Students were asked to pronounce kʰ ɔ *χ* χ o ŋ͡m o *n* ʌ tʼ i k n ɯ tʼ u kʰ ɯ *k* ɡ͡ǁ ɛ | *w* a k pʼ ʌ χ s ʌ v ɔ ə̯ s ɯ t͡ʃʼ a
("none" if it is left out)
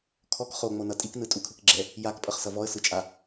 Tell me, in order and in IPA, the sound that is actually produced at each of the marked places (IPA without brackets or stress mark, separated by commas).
k, n, k, j